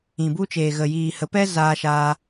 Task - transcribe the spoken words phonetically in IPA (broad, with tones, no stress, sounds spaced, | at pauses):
ĩ˨ b u˧ t͡ʃ eː˨ ɣ ə˨ j iː˨ h ə˨˦ p ɛ˦ z aː˧ ʃ aː˧